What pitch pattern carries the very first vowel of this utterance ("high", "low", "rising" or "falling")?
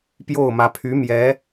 falling